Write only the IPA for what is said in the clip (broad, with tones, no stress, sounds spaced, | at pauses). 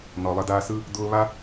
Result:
n ɔ˩ lˠ ə˧ d aː˧ s ɯ˥ | d̪ ʊː˧ β a˥